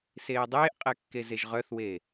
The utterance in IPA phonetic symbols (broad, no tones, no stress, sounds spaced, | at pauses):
s eː dˤ eː ʔ qʼ ɛ kː e z e ʒ ʁ œ θ w e